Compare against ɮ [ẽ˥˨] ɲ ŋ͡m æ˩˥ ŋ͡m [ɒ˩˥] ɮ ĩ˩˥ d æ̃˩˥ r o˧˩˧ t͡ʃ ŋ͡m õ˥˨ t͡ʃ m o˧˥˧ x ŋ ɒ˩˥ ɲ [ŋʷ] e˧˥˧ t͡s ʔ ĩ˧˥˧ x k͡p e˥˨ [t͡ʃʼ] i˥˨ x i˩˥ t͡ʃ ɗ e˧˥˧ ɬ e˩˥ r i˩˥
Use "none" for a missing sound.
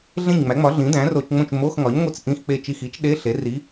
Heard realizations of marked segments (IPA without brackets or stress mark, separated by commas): ẽ˥˨, ɒ˩˥, ŋʷ, t͡ʃ